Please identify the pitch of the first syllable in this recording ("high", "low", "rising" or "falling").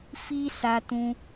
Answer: high